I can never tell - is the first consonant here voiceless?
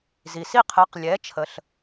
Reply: no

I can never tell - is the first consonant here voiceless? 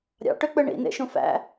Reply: no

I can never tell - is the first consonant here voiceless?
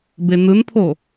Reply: no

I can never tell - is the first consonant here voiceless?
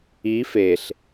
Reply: yes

